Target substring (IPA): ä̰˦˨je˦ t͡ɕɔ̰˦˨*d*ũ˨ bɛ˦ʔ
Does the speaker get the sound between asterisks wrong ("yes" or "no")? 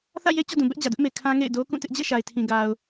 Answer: no